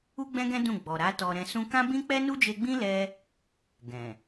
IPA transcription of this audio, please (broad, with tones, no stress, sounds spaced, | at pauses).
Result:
u˦ ɡ͡b ɛ̃˦ ɡ ɛ̃˦ d ũ˦˨ ɡ͡b ɔ˨ ɾ a˨˦ t ɔ˧ ɾ ɛ̃˧ s ũ˦ k ã˦ b ĩ˦ k͡p ɛ˦ n u˦ d͡ʒ e˧ ɡ͡b ĩ˦ l ɛ˦ | ɡ ɛ̃˨